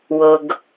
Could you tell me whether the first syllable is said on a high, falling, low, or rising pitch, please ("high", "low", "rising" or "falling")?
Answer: low